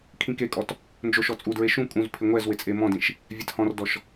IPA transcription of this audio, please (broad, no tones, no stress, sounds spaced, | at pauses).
kʰ ĩ k e kʼ ɔ t | n d͡ʒ o ʃ ɔ t͡sʼ u d ɹ e ʃ ũ kʼ ũ z pʰ ɪ ŋʷ ɛ z w ɪ t͡sʼ e m ɔ̃ d ĩ ʃ | vʲ ɛ t h ɔ̃ r d ɔ ʃ